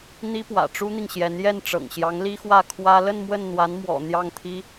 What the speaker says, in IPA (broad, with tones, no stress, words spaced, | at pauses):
n̪i˥pwä̰˨˩ ʈ͡ʂu˥n̪i˨ŋɕjɛ˧˥n jɛ˥˩nʈ͡ʂɤ̰˨˩ŋɕjɑ˧˥ŋ li˥xwä˥˩ kʰwä˥ lə˥˧n mwə˥˩nn̪wa˧˥n mwɔ̰˨˩ n̪jɑ˥˩ŋt̪ʰi˥